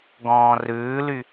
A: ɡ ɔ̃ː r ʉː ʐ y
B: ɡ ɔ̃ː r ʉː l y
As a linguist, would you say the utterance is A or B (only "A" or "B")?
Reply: B